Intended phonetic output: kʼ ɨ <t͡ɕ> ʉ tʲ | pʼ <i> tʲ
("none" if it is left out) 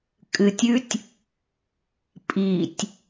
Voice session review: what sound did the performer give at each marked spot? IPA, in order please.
tʲ, i

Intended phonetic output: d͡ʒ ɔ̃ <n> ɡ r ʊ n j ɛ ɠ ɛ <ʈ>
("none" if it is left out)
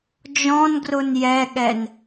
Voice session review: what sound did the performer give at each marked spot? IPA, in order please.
n, n

